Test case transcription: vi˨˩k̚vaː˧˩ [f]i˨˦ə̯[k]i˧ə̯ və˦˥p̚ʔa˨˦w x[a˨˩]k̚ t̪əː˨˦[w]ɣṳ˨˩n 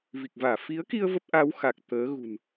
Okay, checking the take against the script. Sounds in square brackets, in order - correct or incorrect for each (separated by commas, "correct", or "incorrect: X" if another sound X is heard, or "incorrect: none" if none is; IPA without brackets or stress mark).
correct, correct, correct, incorrect: none